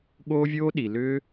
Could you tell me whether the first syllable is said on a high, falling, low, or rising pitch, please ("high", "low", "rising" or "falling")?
high